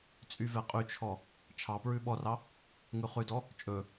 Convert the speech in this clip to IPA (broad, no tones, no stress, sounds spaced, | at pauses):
t͡sʼ y v ɛ qʼ y t͡ʃʰ ɔ | t͡ʃʰ ɑ p ɹ ʉ ɓ ɔ r ɑ | ŋ ʉ χ ʉ d ɔ | t͡ʃʼ ɵ